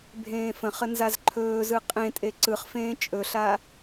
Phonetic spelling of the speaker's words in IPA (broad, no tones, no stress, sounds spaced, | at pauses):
bʱ ẽː f ə̃ χ ə n z a z ǃʰ ɵː z ɯ qʼ ẽ tʼ e ǀ ɯ χ f ẽː t͡ʃʼ ɵ ɬ a